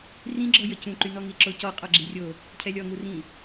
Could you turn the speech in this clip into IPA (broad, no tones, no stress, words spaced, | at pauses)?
rĩɡ͡ǁɔjə cũǃynɔŋi ǁocɔ qʼɔɡ͡ǁirʲo | cʰɛlʲɔŋu rĩ